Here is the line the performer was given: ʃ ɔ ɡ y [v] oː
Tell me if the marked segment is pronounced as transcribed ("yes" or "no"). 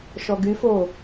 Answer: no